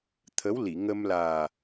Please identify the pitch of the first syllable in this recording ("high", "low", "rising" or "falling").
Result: rising